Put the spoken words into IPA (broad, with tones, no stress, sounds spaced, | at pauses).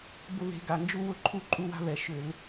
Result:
b ʊ˦ β e̤˨˦ ɡ a˩˧˩ n d͡ʒ u˦ w ʊ˥˩ ǃʰ u˥˩ ǃʼ u˦ w a̤˦ β ɛ˧˩˧ ʃ ʏ˧˩˧ l